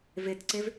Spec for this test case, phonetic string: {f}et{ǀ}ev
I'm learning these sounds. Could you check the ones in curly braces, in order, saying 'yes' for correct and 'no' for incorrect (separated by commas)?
no, yes